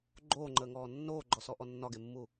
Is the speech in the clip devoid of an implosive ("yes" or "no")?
yes